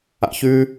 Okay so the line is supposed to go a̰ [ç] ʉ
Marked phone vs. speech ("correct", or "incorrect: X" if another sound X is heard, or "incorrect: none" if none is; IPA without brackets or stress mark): correct